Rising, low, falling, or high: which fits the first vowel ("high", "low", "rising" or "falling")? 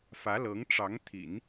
rising